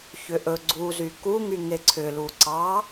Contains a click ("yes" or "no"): yes